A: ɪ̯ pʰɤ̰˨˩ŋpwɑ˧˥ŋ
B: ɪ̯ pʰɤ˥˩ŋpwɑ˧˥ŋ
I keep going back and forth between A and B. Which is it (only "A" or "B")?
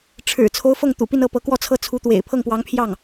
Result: B